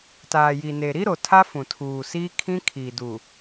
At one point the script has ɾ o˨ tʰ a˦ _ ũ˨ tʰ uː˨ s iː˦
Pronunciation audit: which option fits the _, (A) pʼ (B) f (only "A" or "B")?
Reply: B